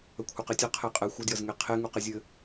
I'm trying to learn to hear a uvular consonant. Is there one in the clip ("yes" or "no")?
yes